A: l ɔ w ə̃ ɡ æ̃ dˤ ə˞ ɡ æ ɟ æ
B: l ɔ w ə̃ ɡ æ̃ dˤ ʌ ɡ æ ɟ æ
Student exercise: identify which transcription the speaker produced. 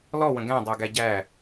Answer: A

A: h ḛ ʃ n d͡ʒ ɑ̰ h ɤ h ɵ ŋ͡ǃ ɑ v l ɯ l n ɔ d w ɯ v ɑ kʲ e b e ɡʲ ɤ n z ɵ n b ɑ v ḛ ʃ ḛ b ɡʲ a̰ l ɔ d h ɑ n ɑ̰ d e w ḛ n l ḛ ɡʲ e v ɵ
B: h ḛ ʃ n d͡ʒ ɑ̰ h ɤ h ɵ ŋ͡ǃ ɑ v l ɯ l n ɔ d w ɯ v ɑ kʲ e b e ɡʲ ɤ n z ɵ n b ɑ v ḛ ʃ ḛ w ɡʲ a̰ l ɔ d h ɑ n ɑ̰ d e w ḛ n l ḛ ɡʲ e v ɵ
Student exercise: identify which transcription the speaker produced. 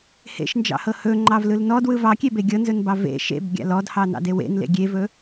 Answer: A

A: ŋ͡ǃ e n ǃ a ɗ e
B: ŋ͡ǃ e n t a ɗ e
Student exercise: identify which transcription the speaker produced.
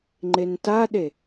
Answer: B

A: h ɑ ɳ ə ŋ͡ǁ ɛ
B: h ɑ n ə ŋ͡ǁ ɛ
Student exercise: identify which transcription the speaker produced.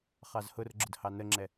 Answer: B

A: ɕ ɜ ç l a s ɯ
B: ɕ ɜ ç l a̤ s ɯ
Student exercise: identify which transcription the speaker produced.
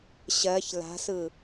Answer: B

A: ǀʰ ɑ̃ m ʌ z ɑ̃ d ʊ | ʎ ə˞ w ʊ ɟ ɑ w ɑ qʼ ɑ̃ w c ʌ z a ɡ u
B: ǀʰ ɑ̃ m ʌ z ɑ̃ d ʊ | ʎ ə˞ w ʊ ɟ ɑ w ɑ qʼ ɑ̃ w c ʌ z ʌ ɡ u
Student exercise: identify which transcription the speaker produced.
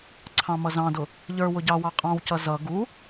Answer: B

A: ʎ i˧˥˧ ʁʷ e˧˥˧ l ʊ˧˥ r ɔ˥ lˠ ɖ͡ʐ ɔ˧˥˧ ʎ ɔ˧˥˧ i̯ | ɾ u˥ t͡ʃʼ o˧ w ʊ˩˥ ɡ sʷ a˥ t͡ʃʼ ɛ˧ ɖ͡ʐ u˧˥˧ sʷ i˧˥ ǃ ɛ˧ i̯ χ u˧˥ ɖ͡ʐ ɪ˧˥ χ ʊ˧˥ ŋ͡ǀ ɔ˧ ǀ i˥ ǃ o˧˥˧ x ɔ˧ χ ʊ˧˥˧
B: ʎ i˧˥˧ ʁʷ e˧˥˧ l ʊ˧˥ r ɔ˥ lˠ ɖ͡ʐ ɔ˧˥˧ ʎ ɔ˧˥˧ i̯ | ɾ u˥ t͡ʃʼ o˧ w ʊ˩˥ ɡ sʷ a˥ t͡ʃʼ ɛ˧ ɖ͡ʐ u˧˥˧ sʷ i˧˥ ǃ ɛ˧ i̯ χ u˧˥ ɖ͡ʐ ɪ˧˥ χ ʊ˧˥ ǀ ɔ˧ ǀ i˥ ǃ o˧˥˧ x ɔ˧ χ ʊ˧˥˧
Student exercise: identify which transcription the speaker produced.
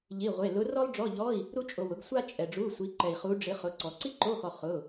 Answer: B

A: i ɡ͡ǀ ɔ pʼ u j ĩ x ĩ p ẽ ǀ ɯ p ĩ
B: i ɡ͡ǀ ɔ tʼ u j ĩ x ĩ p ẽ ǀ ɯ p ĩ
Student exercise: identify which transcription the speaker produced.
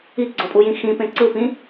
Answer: A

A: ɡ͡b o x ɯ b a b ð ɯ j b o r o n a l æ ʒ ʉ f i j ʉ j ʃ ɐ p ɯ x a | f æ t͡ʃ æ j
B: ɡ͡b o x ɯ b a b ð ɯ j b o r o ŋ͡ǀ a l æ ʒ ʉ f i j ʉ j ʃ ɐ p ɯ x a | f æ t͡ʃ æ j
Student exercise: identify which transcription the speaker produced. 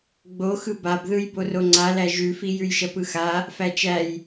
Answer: B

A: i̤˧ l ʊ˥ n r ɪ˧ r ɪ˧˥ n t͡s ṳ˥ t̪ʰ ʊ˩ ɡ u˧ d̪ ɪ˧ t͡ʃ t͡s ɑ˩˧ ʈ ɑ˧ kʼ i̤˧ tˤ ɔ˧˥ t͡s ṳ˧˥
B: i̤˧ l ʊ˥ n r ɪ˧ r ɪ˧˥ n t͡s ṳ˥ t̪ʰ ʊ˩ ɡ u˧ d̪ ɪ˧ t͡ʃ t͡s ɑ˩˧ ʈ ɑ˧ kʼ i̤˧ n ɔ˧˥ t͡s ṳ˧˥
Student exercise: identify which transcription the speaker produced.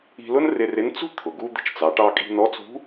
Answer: B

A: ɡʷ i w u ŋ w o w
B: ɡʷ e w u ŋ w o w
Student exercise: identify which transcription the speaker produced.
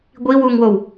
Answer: A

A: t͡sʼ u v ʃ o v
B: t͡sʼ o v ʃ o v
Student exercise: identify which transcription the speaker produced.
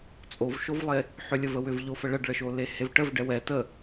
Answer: B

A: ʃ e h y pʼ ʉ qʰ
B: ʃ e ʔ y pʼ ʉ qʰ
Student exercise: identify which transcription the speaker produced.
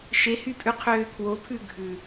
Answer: A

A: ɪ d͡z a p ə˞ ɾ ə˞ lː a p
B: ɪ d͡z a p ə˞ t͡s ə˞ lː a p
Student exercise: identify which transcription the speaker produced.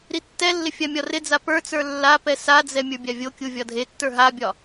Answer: B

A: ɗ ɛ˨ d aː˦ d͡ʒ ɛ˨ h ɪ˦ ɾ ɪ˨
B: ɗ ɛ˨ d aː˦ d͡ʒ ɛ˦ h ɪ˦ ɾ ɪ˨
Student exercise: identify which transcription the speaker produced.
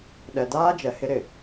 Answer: A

